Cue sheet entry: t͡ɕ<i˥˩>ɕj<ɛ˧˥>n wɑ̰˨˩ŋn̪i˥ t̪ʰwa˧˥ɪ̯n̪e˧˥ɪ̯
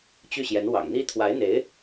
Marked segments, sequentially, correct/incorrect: incorrect, correct

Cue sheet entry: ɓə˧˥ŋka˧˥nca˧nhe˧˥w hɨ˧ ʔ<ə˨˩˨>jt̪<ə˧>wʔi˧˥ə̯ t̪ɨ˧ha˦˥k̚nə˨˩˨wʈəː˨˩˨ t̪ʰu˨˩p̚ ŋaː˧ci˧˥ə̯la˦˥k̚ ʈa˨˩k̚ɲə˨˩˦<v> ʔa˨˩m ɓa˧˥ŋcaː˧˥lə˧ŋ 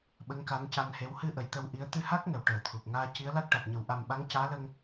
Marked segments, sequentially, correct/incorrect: incorrect, correct, incorrect

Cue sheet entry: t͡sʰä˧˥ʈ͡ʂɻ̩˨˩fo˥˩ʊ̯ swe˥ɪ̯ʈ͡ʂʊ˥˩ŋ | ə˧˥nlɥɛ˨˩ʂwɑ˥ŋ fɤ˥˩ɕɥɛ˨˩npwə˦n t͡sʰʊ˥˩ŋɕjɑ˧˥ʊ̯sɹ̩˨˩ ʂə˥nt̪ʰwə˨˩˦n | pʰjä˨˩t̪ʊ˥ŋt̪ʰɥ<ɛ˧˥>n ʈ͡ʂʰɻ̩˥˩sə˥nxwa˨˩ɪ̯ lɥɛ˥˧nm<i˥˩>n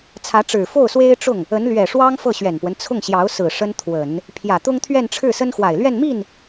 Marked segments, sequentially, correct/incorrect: incorrect, correct

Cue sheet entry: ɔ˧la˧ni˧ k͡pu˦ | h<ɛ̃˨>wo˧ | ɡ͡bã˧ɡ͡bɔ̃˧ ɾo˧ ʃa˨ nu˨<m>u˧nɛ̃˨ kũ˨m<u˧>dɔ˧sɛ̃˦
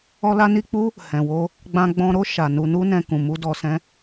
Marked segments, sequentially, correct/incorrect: correct, incorrect, correct

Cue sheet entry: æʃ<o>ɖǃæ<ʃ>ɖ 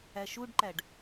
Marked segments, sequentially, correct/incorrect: incorrect, incorrect

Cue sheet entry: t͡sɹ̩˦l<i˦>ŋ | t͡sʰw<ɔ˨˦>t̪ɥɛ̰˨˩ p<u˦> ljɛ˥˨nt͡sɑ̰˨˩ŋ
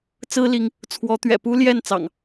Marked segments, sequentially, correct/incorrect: incorrect, correct, correct

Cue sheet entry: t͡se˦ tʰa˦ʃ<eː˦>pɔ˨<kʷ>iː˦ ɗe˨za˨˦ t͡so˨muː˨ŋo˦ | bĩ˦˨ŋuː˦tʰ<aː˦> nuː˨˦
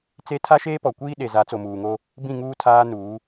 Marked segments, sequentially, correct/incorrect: correct, correct, correct

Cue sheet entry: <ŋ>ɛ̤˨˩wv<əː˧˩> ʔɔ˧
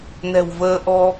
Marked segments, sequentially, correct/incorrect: incorrect, incorrect

